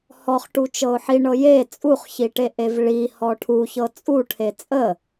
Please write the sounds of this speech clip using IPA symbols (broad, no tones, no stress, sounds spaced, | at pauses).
h ɔ χ ʈ u t͡ʃ ɤ ʊ̯ ħ i ɳ ɤ j e t͡sʼ u χ ç i ʈ e ʔ e v ɭ i h ɔ ʈʰ u ç ɤ t͡sʼ u ʈʰ e t͡sʼ ə